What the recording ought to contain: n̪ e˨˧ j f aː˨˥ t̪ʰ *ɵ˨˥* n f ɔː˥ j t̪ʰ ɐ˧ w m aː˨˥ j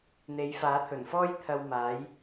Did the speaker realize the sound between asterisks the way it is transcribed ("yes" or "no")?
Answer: no